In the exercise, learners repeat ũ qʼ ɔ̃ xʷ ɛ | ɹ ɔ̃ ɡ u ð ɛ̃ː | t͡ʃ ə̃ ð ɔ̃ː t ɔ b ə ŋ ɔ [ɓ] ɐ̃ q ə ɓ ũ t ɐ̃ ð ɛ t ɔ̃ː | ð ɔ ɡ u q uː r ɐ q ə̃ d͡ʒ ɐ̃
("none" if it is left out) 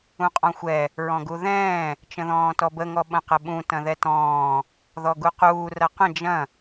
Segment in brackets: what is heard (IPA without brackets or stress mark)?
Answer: ɓ